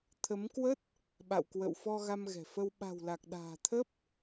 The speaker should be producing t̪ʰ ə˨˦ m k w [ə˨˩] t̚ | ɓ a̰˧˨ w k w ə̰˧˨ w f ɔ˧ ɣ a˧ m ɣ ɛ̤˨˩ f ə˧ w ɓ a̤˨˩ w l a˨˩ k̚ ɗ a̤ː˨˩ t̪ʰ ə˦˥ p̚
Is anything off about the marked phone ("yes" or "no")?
yes